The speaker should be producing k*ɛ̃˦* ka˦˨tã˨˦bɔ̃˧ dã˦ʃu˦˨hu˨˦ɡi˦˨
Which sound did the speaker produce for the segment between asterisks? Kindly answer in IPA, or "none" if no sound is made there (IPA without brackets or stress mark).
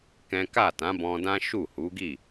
ɛ̃˦